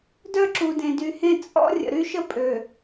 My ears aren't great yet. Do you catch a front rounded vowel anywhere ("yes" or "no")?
yes